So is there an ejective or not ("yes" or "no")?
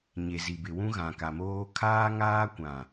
no